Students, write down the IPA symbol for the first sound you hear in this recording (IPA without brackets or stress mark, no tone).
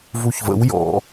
v